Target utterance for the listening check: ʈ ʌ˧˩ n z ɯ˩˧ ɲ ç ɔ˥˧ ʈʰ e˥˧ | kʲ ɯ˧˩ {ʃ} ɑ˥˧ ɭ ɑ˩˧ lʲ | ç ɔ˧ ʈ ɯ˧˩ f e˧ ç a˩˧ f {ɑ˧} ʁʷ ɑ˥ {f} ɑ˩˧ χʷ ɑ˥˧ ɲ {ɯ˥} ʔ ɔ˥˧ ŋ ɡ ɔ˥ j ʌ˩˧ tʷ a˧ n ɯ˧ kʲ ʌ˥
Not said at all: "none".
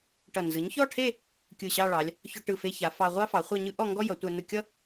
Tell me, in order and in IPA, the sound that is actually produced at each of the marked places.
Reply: ɕ, ɑ˧, f, ɯ˥

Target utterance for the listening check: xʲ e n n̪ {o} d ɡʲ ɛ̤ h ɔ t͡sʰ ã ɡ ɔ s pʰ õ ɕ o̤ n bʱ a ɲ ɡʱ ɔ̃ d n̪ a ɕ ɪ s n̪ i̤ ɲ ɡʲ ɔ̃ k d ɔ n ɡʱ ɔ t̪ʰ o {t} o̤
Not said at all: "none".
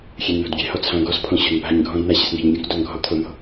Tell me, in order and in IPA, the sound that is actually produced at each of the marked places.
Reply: o̤, n̪

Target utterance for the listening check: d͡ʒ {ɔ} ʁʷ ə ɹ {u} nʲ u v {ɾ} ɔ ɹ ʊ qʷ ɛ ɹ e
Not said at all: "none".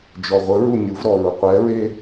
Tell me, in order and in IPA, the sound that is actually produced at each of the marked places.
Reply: ɔ, u, ɾ

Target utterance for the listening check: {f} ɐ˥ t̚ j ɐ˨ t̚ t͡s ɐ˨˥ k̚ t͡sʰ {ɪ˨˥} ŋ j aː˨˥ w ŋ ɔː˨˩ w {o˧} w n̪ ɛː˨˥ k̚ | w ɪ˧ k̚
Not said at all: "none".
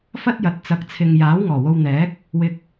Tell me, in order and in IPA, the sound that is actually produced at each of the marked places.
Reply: f, ɪ˨, o˧

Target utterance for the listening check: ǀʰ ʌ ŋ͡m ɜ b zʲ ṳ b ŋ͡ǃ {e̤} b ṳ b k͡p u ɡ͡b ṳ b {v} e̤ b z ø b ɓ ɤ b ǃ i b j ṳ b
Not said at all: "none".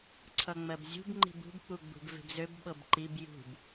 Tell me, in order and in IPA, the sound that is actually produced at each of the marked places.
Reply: i̤, v

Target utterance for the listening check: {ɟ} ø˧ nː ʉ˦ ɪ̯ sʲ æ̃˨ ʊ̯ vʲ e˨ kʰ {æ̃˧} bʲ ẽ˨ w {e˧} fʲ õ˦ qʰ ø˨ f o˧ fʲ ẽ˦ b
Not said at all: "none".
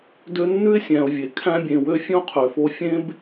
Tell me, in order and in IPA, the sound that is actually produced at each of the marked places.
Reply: d, æ̃˧, ø˧

